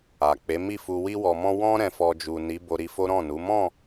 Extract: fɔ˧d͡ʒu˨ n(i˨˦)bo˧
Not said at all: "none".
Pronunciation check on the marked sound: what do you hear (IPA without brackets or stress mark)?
i˨˦